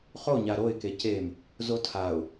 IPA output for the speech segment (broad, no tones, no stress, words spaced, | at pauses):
χo ɲaɾoɪ̯ kecem | zotʰaʊ̯